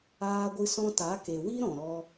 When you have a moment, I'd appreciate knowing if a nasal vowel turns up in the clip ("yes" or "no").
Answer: yes